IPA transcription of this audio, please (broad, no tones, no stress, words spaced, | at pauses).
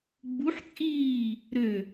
ɡ͡buħt͡sʼiː | ɾø